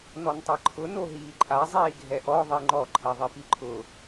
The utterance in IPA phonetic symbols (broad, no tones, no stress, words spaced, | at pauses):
nɔntˤɛǃʰʊ noɦiːǃʼa zˤiːɡʱɛʔɔ ðˤiŋ͡ǃɔ ǃʰɛðˤipiǃʰʊ